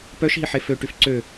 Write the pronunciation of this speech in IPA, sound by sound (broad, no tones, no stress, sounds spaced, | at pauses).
p œ ʃ ɦ i ħ e f ø ʈ y f ǀ ø